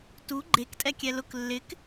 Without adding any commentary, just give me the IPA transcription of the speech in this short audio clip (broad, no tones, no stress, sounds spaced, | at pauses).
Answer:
t u ɡ͡ǃ e k tʼ ɛ kʲ ɛ l ʊ k lː ɪ k